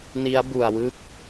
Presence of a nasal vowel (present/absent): absent